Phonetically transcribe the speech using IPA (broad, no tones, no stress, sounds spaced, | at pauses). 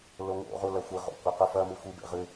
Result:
l o ŋ o̰ ʁ u l ɐ xʷ ɨ ʁ o̰ kʷ ɐ q u f ɐ m ɨ xʷ i b ḛ ʁ ɨ